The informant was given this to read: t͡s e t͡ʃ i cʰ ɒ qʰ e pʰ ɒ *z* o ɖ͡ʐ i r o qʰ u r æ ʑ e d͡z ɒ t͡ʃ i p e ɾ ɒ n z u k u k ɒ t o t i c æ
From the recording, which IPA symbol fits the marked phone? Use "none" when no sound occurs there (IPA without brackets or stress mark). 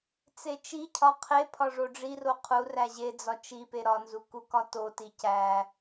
ʐ